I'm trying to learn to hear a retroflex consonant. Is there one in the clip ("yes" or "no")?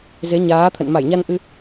no